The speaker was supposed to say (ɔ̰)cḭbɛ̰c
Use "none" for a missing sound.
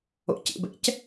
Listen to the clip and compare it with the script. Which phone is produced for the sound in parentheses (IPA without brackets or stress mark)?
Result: o̰